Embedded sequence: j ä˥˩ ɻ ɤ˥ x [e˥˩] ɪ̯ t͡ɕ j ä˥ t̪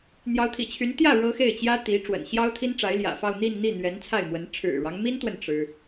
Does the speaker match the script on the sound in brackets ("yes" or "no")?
yes